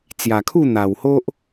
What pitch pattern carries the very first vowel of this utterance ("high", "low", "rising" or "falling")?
low